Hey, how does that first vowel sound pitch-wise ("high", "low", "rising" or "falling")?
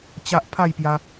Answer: high